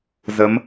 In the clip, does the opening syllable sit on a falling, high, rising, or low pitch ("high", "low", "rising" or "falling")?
rising